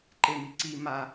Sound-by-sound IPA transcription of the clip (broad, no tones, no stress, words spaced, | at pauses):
ǃemiǀi ma